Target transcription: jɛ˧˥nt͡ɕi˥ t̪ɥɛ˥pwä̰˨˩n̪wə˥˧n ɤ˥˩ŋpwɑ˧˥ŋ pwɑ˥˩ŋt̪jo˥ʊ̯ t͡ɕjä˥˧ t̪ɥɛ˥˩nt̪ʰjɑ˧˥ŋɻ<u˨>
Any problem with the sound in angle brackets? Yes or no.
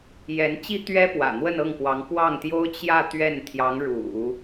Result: yes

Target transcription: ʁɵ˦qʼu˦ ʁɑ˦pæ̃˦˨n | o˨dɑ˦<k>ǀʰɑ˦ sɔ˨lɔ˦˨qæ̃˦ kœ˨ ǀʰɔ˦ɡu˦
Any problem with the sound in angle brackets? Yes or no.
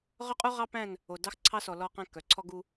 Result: yes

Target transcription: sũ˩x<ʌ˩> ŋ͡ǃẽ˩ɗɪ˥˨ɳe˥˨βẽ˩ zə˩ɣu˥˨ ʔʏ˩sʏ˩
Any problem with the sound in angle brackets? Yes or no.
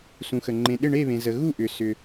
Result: yes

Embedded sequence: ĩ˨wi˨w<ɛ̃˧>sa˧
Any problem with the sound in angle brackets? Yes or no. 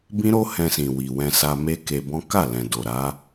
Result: no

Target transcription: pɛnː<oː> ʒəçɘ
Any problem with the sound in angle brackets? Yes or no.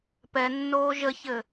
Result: no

